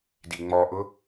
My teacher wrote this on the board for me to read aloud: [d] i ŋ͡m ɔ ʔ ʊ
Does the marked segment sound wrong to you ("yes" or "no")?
no